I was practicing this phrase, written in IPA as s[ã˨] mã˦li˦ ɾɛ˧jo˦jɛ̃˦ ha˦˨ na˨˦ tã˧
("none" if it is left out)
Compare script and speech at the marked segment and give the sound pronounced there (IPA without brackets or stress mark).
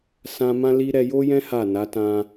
ã˧